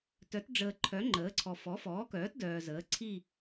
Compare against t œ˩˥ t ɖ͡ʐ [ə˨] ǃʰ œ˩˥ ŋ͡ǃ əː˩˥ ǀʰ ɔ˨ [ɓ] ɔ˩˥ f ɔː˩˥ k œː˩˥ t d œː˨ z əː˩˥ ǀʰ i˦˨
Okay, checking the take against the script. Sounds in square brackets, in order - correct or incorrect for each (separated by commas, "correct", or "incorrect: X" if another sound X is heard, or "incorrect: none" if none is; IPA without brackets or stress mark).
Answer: incorrect: əː˨, incorrect: f